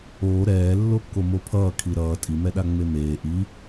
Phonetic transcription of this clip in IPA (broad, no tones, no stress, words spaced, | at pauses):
oː ɾɛː lːokːomopʰʌː kʰiɾʌː tʼi mɛɗaŋ͡memeː ʔi